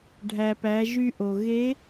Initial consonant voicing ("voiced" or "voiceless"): voiced